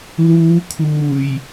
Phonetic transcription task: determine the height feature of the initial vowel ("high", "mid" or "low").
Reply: high